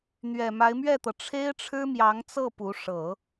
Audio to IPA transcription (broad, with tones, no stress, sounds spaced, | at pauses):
n̪ ɥ ɛ˨˩ m a˧˥ ɪ̯ m ɥ ɛ˥˩ t̪ ɤ˩ ʈ͡ʂʰ e˥ ɪ̯ ʈ͡ʂʰ ɻ̩˥ m j ɑ˧˥ ŋ t͡s ɤ˥˩ p u˧˥ ʂ ɤ˨˩˦